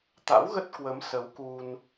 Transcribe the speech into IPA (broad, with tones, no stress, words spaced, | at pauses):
t̪a̰˧˥wɣə˦˥t̚ kwə˨˦m sə˨˦wku˧n